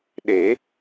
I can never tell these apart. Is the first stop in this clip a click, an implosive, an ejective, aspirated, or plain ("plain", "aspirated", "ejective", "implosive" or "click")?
implosive